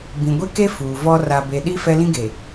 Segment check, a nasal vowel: present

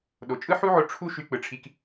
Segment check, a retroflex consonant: present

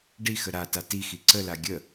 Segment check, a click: present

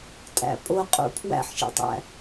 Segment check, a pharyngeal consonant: present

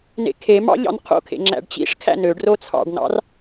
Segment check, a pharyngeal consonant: absent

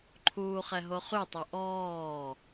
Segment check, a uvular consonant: present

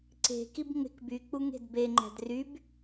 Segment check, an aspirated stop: absent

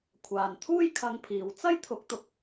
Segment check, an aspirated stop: present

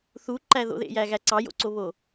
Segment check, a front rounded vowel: absent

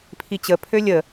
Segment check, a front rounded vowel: present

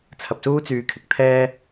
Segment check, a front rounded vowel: present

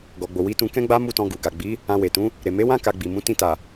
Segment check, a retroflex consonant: absent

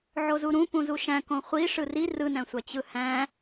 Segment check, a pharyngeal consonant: present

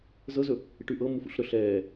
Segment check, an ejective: absent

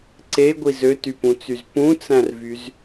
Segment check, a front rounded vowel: present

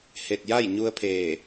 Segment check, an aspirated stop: present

